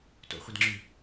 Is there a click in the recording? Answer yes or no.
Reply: yes